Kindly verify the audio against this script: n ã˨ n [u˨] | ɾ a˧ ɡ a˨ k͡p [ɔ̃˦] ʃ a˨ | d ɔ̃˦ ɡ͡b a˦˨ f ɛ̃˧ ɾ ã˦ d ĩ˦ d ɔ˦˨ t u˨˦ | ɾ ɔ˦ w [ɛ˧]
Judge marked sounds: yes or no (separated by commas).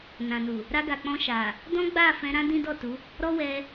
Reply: yes, no, yes